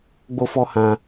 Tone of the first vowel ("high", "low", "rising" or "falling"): high